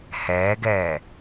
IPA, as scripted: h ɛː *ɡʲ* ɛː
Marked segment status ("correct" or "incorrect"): incorrect